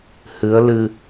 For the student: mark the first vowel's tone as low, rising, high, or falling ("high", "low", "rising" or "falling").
rising